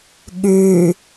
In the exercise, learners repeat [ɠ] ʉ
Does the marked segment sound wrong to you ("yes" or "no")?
no